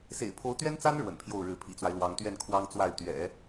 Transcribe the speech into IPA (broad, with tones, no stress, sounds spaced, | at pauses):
s ḛ˨˩ ɪ̯ pʰ o˧˥ ʊ̯ t̪ ɥ ɛ˥ n t͡s a˥ n ɻ w ə̰˨˩ n pʰ j o˥˩ ʊ̯ ɻ ɻ̩˧˥ pʰ ḭ˨˩ t͡s w a˦ ɪ̯ l w ɑ˧˥ ŋ t̪ ɥ ɛ˥˩ n kʰ w ɑ˥ ŋ t͡s w a˥˩ ɪ̯ t̪ ɥ ɛ̰˨˩˦